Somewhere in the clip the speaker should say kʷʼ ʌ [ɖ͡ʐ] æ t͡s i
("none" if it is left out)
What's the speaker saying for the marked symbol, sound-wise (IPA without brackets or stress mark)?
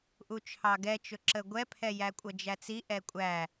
d͡ʒ